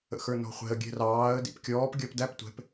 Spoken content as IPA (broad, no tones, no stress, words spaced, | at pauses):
ə̰xə˞nɔ̤χʷɛ̤ə̯ ɡʲɛ̤rɑːə̯ dḭpkʲɔːp ɡʲʌpdæp tʷɛ̤p